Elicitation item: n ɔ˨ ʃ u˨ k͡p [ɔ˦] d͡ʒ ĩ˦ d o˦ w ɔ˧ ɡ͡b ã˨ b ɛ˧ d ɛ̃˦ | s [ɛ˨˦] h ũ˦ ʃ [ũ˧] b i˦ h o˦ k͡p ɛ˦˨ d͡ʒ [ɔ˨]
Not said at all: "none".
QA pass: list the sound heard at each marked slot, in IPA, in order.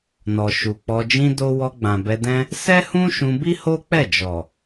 ɔ˧, ɛ˦, ũ˧, ɔ˨

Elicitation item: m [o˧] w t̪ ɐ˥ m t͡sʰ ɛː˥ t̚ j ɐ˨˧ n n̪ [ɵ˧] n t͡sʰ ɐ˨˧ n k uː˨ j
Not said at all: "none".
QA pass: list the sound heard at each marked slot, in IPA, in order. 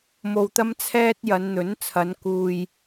o˧, ɵ˨˥

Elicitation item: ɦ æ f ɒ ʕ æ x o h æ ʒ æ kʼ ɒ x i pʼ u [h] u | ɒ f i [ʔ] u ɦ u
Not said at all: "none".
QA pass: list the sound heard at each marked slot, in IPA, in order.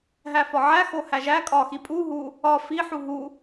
ɦ, ħ

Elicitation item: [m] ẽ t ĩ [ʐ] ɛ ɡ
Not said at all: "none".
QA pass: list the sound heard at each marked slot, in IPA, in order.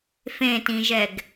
f, ʒ

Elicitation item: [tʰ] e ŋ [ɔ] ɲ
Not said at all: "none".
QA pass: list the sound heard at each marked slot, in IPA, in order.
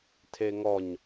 tʰ, ɔ

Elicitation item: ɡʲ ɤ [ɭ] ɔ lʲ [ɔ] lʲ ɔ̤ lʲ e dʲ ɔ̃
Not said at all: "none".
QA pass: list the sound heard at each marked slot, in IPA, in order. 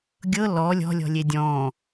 l, ɔ̤

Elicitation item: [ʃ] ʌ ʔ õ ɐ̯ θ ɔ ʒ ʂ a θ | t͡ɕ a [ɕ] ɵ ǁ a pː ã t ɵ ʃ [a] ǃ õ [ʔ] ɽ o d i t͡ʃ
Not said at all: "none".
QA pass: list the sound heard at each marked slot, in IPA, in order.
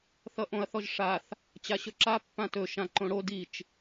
θ, ɕ, ã, none

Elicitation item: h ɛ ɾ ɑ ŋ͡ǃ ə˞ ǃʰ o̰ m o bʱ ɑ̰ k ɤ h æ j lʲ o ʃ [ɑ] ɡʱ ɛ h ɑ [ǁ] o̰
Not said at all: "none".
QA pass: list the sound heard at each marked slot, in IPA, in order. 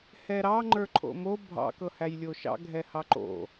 ɑ̰, ǃ

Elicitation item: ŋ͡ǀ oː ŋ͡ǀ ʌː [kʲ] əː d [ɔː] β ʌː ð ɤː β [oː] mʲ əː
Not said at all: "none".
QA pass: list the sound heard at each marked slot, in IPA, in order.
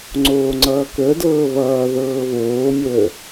k, ɤː, oː

